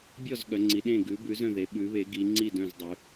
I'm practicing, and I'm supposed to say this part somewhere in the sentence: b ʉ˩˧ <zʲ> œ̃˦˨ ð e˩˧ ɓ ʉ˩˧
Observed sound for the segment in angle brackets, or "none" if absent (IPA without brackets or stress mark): z